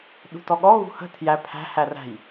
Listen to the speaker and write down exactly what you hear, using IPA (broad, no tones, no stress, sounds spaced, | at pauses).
ɗ ṳ t ɔ ɠ ɔ ɣ ṳ h ə̤ tʰ j æ pʰ æ̤ h æ r æ̤ j